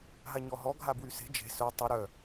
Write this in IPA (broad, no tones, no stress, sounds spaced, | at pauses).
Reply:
ɦ a ɲ ɔ ɦ ɔ ɡʱ a b w y s e̤ d͡ʒ e̤ s œ tˤ u ɾ œ